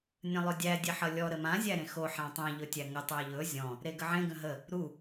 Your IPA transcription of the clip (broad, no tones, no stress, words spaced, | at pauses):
nʲə̃lˠɵdʲæ dʲeħʌlʲɔ ɾəmã zʲæɾẽxo ħãtˤæ̃ ʎɵtʲæŋə tˤæʎɵ zʲɔ̃ | ɾeɡəʕẽ ɡə̃ɦə | ɾu